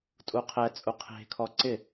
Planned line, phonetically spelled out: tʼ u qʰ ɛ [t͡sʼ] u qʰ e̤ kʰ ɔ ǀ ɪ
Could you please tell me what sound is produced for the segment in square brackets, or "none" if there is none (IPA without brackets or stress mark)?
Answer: t͡sʼ